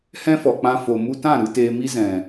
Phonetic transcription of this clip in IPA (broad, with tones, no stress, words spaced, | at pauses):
hɛ̃˦fɔ˨k͡pã˧ fo˨mu˧tã˦˨ ɾɨ˧teː˧mi˦ zɛ̃˨